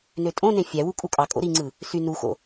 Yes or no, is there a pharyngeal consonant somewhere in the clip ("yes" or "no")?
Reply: no